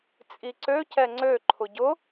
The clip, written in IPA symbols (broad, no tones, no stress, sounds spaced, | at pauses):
t͡sʼ i ǀ ø c ɛ ŋ͡ǀ ø ǃʰ ʊ ɟ ʊ